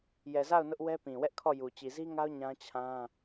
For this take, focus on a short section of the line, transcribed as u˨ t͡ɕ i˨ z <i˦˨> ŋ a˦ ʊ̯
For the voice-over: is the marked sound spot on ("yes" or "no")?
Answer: no